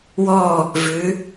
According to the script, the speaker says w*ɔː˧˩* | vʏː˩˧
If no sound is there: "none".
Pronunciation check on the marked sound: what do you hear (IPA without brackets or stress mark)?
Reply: ɔː˧˩